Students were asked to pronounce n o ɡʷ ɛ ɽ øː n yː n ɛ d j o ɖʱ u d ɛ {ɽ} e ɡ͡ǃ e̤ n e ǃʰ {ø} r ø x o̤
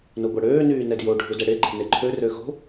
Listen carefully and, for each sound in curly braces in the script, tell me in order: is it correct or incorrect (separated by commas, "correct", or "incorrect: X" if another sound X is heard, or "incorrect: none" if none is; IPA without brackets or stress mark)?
correct, correct